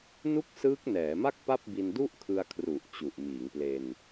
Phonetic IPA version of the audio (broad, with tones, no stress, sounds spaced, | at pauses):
n u˥˩ k̚ s ɯː˦˥ k̚ n ɛː˩˦ m a˥˩ k̚ p a˥˩ p̚ b i˧ n d u˥˩ ʔ kʰ ɯ˧ a̯ kʰ r u˨˩ ʔ t͡ɕ u˨˩ ʔ m iː˩˦ ŋ p l e˧ n